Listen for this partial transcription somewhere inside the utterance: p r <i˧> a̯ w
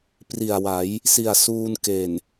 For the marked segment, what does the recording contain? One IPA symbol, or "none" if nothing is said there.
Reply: i˨˩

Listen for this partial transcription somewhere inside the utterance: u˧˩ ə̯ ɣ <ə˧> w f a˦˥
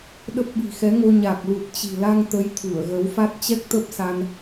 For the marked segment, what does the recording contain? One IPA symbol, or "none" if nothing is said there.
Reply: ə˨˦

